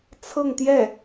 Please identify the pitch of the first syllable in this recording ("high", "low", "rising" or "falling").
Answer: falling